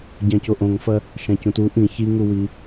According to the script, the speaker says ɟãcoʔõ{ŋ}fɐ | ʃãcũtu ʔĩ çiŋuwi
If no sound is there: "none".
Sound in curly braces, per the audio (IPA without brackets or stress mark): ŋ